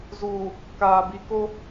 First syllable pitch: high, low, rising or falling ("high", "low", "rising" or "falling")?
low